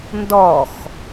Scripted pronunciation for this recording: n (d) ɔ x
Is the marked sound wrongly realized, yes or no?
no